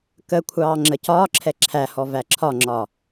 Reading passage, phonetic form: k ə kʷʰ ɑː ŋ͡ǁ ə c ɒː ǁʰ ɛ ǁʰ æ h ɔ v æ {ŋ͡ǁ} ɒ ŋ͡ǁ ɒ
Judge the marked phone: incorrect: ǁʰ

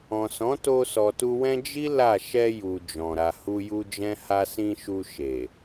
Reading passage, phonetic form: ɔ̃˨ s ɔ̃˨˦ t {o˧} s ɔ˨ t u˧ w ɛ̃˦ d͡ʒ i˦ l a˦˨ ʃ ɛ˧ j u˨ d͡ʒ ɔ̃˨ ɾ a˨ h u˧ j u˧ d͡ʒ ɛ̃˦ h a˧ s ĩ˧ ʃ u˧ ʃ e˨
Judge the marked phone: correct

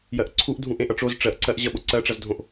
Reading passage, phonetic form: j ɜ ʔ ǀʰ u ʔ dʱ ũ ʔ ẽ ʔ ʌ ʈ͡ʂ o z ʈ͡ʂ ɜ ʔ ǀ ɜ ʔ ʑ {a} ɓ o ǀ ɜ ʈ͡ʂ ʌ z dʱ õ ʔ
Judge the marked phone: incorrect: ʌ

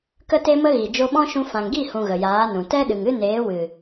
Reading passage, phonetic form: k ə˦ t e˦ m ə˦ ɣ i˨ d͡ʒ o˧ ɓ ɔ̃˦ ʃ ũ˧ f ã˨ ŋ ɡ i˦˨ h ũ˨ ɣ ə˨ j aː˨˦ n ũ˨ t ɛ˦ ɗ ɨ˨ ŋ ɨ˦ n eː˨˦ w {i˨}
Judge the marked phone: incorrect: ɨ˨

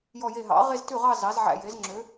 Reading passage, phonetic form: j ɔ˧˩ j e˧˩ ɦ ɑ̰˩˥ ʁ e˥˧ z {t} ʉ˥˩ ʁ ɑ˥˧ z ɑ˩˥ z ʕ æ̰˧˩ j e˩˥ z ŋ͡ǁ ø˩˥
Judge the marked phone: correct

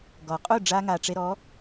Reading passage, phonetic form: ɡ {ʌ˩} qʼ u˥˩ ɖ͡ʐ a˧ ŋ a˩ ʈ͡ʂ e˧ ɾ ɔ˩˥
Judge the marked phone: incorrect: ɔ˩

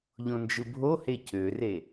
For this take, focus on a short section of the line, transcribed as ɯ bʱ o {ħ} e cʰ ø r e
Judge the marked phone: incorrect: h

